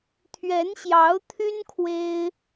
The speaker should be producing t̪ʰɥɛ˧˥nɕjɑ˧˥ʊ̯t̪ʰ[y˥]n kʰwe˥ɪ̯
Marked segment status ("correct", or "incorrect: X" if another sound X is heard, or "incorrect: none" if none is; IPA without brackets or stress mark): correct